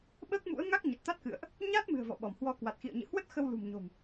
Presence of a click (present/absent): absent